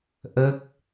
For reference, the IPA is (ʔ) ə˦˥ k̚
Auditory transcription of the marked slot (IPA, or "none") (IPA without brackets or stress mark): ʔ